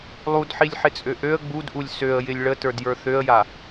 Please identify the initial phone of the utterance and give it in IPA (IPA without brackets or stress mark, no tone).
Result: lˠ